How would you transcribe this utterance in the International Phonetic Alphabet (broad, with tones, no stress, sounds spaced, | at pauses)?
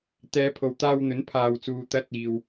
t̪ ɛː˨˧ pʰ o˨ w t̪ aː˧ w n̪ ɵ˨˥ n pʰ aː˨ w t͡s uː˨ t̪ ɐ˧ t̚ iː˨ w